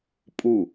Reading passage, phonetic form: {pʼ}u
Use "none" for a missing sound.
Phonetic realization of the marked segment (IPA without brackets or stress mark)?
pʼ